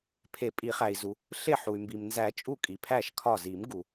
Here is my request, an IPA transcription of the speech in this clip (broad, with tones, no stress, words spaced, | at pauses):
pʰe˨˩˦pʼi˨˩˦χæ˩i̯zu˩ | ɬe˧˩ħu˩y̯ mbi˩mnzæ˨˩˦t͡ʃʼu˧˩ kʼi˩pʰæ˧˩ʃ kʰɒ˧˩zi˨˩˦mɡu˩